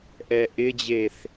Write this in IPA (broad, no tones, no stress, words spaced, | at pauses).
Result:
ʔɛʔɪd͡ʑeθ